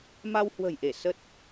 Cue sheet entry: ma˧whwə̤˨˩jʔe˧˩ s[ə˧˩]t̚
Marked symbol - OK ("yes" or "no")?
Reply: no